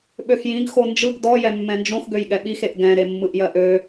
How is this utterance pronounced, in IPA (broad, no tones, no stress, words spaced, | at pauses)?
ɓøxjĩɡ xond͡ʒɯɡ dɔ jɛmːɛ̃nd͡ʒõx ɡøjɠɛɓix eʔɡɛ̃ ɾemːɯʔjɜʔø